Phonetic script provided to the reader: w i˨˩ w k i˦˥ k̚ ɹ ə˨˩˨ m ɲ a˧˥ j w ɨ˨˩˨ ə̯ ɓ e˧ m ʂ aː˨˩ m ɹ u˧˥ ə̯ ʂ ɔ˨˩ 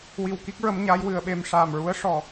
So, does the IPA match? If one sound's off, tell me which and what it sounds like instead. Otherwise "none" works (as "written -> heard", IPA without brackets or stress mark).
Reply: ə˨˩˨ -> ə˧˥